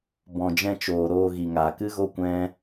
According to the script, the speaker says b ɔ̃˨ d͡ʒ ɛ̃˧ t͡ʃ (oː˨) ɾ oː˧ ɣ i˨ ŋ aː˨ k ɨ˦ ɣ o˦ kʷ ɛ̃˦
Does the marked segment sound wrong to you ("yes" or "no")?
no